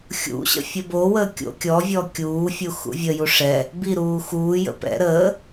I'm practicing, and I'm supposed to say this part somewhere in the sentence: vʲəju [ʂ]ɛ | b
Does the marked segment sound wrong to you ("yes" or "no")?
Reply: no